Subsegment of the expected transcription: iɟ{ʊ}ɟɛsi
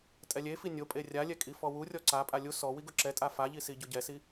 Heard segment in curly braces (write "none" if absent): ʊ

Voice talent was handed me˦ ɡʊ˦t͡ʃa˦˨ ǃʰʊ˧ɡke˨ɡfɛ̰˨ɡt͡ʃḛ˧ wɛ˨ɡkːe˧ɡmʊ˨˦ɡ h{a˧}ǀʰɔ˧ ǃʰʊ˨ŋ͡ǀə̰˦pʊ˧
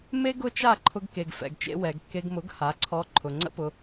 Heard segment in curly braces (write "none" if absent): a˨˦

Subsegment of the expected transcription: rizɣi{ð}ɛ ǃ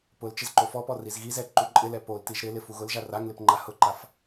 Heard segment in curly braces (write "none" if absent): z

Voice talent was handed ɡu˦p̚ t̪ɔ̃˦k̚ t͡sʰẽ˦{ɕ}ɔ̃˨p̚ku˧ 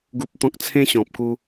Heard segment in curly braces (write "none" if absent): ɕ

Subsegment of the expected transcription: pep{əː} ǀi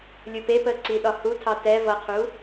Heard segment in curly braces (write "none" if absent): əː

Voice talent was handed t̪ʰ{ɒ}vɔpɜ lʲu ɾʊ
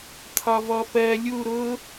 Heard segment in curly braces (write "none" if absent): ɒ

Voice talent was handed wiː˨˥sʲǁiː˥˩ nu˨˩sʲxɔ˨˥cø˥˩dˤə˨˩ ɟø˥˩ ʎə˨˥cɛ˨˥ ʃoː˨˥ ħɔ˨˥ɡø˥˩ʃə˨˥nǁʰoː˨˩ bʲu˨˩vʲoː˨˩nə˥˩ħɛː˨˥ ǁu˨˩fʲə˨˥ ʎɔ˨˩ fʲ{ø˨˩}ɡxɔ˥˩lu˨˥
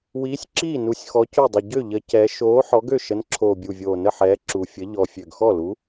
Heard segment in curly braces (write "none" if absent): ø˨˩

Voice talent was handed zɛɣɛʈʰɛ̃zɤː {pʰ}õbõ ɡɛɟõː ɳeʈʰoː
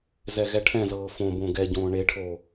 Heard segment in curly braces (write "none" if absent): f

